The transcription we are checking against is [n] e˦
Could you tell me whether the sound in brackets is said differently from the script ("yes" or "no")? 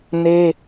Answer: no